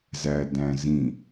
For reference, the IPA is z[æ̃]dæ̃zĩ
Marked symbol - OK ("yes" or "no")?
no